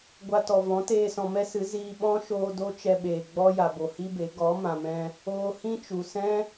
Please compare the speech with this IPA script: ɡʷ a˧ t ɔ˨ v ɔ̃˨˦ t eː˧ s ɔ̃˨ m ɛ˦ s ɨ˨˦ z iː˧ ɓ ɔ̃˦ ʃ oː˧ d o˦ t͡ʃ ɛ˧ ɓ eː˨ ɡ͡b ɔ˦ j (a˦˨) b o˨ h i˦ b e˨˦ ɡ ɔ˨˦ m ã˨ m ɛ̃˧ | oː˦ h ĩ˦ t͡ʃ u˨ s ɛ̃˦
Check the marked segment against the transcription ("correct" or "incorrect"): incorrect